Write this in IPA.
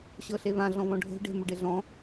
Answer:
ɕ ɤ ɬ e β ã ɮ ɔ̃ β ɔ̃ ɖʱ e̤ ɖ e̤ m ɵ ɖ e ɮ ɔ̃

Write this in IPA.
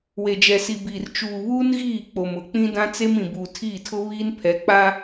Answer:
w e˨ d͡ʒ ɛ˨ s i˨ b iː˨ r t͡ʃ uː˨ β uː˦ n ɣ iː˦˨ k͡p o˨ m ʊ˨ k͡p ĩ˦ d ã˦ t͡s e˦ m ĩ˨ b uː˨ tʰ iː˦˨ tʰ ʊ˦ β iː˦ n pʰ ɛ˨˦ k͡p a˦

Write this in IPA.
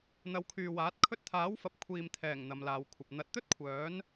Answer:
n̪ ɐ˨˧ w kʰ yː˨ w aː˨˥ t̚ kʰ ɵ˧ t̚ t̪ʰ aː˨˥ w f ɐ˨ p̚ kʷʰ iː˨ m t̪ʰ ɛː˨˩ ŋ n̪ ɐ˨˧ m l aː˨˧ w kʷʰ ɐ˨ p̚ n̪ ɐ˨˥ t̚ t̪ ɵ˥ t̚ kʷʰ œː˨˥ n

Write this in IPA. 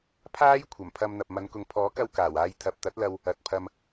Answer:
pʰ aː˥ j kʷʰ ɐ˨˩ m pʰ ɐ˧ m n̪ ɐ˨ p̚ m ɐ˨˧ n k ʊ˨ ŋ pʰ ɔː˨˥ k ɐ˧ w k aː˨˩ w aː˧ j t̪ʰ ɐ˨ p̚ t̪ ɐ˨˥ t̚ l ɐ˧ w | ɐ˨ t̚ pʰ ɐ˧ m

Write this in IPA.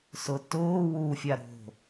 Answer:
s ʊ t ʊː w u fʲ a ɾ o̤

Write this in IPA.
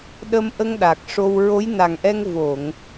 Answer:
ɗ ə˧ m ʔ ə˧ ŋ ɗ a˨˩ k̚ ʂ o˧ w ɹ o˧˥ j n a˨˩ ŋ ʔ ɛ˧ ŋ v o˨˩˨ ŋ

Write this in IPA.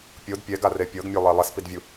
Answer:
pʲ o d pʲ ɛ ɡ a r e pʲ ɤ ɡ mʲ o lˠ e lˠ ɛ s p i d vʲ u

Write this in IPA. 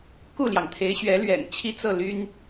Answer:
k u˥˩ l j ɑ˩ ŋ t̪ʰ e˧˥ ɪ̯ ɕ ɥ ɛ˧˥ l ɥ ɛ̰˨˩ n t͡ɕʰ i˥ t͡s ɤ˥˩ l y˥ n

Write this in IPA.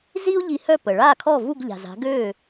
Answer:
z i˥ u̯ ʎ i˧ h œ˥˩ p ə˩ ɭ a˥˩ kʰ ɔ˥˩ v u˥˩ ɡ ʎ a̤˩ z a̤˩˥ ɡ ø˥˩

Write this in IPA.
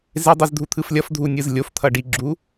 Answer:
z e dˤ ɯ z dʱ u t̪ʰ ɯ f lʲ ʌ f dʱ u nʲ ɯ z lʲ o f t̪ʰ ʌ ɖ i ɡ͡ǁ u

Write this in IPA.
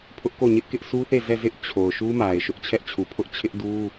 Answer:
pʰ ʊ˦ ʔ k o˦˨ ɲ ɪ˦ ʔ k ɪ˦ ʔ s u˦ θ e˦˨ z ɛ˦˨ z ɪ˦ ʔ t͡ɕʰ o˨ ʊ̯ ʃ u˦ m a˨ ɪ̯ ʃ ʊ˦ ʔ t͡ɕʰ ɛ˦ ʔ t͡ɕʰ u˨ pʰ ʊ˦ ʔ t͡ɕʰ ɪ˦ ʔ d u˦

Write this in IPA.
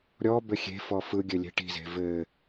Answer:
ɾʲ ɔ b ɘ xʲ e̤ f ɔ f ɯ ɡʲ ɘ lʲ e̤ ʈ i̤ z e̤ v ɘ

